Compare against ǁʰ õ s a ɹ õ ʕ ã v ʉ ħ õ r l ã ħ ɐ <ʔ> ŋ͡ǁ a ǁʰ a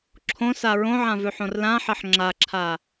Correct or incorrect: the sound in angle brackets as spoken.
incorrect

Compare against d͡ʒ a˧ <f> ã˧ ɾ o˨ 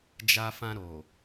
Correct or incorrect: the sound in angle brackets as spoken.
correct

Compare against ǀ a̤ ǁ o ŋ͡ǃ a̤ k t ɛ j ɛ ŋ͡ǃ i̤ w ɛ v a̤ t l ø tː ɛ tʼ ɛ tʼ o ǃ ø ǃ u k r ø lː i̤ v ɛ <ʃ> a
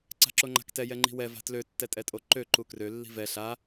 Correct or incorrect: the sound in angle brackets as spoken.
incorrect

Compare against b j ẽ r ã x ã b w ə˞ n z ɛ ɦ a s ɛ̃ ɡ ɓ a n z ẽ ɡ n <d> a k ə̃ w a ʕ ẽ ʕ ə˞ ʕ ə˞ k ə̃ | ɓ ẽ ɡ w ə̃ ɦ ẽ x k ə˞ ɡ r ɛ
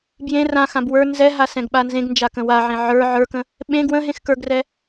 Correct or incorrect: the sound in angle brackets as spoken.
incorrect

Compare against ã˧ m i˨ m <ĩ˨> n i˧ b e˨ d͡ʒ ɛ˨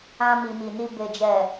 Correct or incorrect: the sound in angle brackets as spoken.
incorrect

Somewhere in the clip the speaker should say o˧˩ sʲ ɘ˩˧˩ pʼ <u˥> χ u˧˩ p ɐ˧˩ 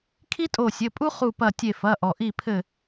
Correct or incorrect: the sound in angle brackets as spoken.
correct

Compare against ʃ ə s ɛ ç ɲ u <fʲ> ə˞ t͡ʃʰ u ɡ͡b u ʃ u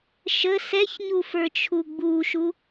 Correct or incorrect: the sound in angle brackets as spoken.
incorrect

